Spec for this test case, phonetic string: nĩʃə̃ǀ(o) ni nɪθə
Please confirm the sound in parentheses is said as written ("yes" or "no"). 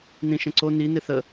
yes